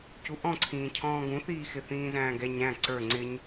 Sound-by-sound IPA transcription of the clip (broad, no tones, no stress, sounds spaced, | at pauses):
c u ʔ ɔ̃ ǀʰ ĩː cʰ ɔ̃ː ɡ ũ θ iː x ɪ θ ĩː z æ̃ː ɡ ɛ ɲ æ̃ ǀ ə˞ ŋ͡ǀ ɪ ɲ